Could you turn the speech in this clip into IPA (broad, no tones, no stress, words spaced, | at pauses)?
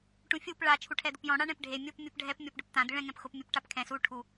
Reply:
ʈũfʲup ɭa t͡ʃʰuʈʰɛd̪ʊpjɔ̃ ɽaɳɛ̃pɖʱe mʲop mʲopɖʱɛp mʲɔpɖʊpt̪ã d̪ɪɭɛ̃ ŋɛ̃pxʊp mʲopʈapkʰɛ̃ su ʈʰu